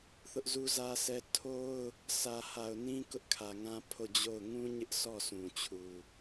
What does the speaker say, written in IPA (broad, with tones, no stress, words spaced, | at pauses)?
θʊ˦ʔzu˦zä˦sʰɛ˦ tʰo˦ʊ̯ | sʰä˨ ha˨ʊ̯nĩ˦kʊ˦ʔ kʰä˨ŋã˦ pʰo˦˨d͡ʑo˦˨ʊ̯ ŋũ˦ɲɪ˦ʔ sɔ˦˨sũ˨ t͡ɕʰu˨